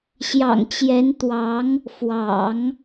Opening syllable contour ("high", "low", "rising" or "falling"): low